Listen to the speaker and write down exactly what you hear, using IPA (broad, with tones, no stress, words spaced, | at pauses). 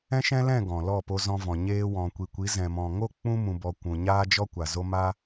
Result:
ɛ̃˦ʃɛ̃˦lɛ̃˦˨ ɡɔ̃˨lɔ˦˨ po˧zɔ̃˧vɔ̃˨ ɲeː˧wɔ̃˨kʷi˨kʷi˨˦ zɛ̃˨mɔ̃˨ŋo˦˨ k͡pũ˧mũ˨bɔ˨ kʷũ˨ɲaː˦d͡ʒɔ˦ kʷa˨zo˦ ma˦